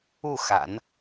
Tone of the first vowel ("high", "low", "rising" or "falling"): falling